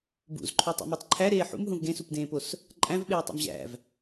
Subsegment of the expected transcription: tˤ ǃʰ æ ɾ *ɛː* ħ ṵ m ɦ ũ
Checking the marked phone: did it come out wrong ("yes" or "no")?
yes